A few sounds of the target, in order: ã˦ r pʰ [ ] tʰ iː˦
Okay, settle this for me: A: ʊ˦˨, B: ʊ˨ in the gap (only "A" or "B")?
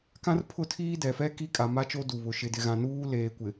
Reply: A